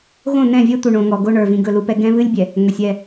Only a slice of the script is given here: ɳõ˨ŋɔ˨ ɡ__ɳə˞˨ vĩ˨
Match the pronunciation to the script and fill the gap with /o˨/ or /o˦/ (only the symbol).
o˦